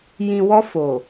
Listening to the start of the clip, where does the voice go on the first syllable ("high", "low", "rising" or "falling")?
low